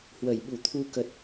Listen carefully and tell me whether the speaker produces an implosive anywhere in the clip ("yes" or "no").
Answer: yes